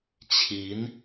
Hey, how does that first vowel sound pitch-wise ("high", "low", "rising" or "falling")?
rising